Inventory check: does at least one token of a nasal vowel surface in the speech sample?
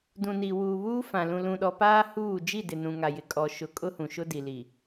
yes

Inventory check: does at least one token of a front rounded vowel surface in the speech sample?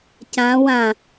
no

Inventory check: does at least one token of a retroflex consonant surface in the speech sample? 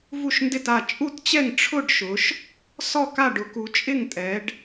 yes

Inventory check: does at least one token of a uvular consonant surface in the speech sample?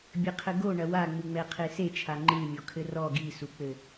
yes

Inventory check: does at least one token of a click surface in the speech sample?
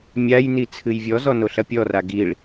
no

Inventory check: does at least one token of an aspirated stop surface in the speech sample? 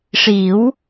no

